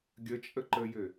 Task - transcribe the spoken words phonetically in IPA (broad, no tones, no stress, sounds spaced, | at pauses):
ɡʲ ə t͡ʃʼ ə ǃ ə j ɘ